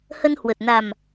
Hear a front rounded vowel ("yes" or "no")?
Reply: no